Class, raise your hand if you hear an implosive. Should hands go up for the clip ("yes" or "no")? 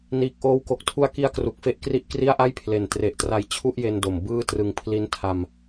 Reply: no